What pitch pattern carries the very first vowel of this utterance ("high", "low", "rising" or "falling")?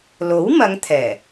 rising